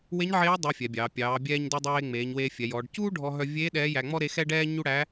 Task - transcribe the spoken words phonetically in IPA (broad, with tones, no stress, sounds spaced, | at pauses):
w e˧˥ ɲ ʕ eː˧˥ dˤ œ˧˥ fʲ ɛ˩˧ bʲ ɑː˩˧ pʲ ɑː˩˧ bʲ ɛː˧ ɲ d u˧ dˤ eː˧ ŋ͡m eː˩˧ ɲ w eː˧ fʲ ɛ˩˧ j ɔː˩˧ ɖ c uː˥ ɖʱ ɔ˧ ɦ œ˧ vʲ eː˧˥ ɗ ɛː˧˥ j æ˧ ŋ͡m ɔ˥ ɾ e˧˥ x ɛ˥ ɖ ɛː˥ ɲ u˥ ɽ æ˧˥